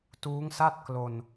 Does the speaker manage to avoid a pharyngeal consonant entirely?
yes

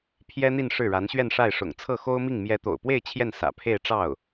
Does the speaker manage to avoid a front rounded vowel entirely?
yes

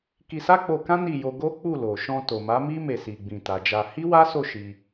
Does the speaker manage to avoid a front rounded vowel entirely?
yes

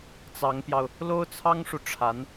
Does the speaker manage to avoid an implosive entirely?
yes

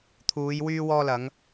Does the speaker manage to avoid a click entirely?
yes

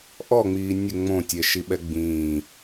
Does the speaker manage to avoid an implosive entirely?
no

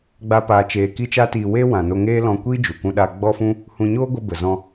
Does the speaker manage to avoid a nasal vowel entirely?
no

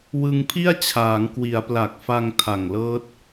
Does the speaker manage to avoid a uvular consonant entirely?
yes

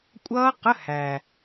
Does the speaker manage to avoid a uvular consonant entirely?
no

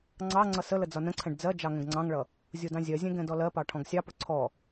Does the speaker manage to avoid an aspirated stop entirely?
no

